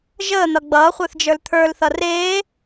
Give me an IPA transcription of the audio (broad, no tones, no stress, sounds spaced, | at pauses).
ʒ əː n̪ ʌ ɡ͡b ʌː χʷ ə˞ θ d͡ʒ ə˞ l t̪ʰ ə˞ l θ ʌ r eː